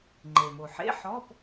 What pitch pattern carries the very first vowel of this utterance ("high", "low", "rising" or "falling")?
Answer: low